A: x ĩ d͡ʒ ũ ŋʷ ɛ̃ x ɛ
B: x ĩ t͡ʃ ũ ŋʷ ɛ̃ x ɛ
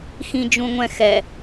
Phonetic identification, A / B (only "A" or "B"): A